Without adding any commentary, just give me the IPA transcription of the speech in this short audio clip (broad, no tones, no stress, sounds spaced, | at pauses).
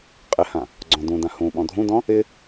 qʼ ɪ h ã | ɡ͡ǀ ɔ̃ d ũ d ã h ũ ɓ ɔ̃ dʱ ũ d ɔ̃ | ɪ